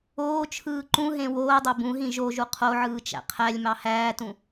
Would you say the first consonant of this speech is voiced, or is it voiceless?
voiceless